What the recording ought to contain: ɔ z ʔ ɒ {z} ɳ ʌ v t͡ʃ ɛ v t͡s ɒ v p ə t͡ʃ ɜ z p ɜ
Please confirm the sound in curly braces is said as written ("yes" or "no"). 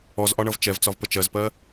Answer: no